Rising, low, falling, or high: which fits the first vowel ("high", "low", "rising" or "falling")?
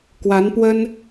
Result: rising